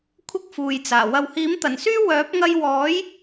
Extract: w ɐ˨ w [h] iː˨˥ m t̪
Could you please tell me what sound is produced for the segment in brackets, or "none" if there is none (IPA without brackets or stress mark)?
h